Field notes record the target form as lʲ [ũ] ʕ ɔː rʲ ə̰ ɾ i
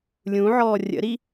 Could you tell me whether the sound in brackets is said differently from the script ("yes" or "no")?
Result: no